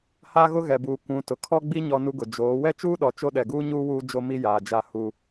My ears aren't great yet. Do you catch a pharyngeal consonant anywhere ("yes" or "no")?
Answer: no